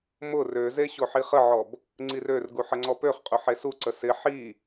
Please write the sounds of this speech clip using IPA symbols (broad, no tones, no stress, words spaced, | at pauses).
mʊ røze ɕoħiχəʕɔb | ŋ͡ǀirørɡu ħəŋ͡ǀɔpøχqʼʊ ħesuǀə sɪ ħi